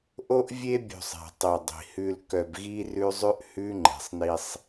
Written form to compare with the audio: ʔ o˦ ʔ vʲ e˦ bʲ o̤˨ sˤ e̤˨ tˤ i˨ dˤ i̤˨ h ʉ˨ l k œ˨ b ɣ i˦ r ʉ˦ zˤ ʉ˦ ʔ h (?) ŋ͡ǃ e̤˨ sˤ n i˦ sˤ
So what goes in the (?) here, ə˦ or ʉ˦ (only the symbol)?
ʉ˦